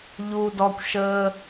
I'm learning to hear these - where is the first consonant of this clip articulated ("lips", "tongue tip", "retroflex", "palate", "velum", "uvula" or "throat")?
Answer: palate